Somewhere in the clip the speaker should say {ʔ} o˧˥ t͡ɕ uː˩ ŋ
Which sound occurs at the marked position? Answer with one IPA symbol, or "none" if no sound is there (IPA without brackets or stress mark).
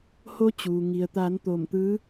h